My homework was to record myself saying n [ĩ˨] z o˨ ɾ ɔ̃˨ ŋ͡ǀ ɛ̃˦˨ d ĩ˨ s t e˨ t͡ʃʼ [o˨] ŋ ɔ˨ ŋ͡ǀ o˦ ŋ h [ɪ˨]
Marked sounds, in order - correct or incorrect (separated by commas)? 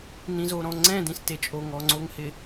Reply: correct, correct, correct